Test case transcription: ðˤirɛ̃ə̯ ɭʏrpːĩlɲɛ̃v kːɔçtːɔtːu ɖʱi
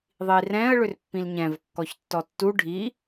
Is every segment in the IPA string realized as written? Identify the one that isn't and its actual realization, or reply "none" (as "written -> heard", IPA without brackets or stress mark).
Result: none